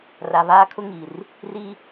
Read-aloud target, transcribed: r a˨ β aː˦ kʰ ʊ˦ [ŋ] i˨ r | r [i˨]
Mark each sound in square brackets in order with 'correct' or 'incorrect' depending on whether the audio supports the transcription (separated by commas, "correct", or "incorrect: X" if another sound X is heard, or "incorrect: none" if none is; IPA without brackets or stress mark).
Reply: correct, incorrect: i˦